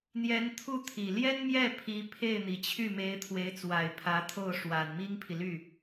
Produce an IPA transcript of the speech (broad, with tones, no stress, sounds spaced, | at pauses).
n̪ j ɛ˧˥ n t̪ʰ u˥˩ t̪ʰ i˨˩ l j ɛ˥ n m j ɛ˥˩ pʰ i˧˥ pʰ e˥˩ ɪ̯ n̪ i˨˩ t͡ɕʰ y˥˩ m e˧˥ ɪ̯ t̪ʰ w e˧˥ ɪ̯ t͡s w a˨˩ ɪ̯ pʰ ä˧˥ t̪ʰ o˥˩ ʊ̯ ʂ w a˨˩ n m i˥ ŋ pʰ i˨ l y˥˩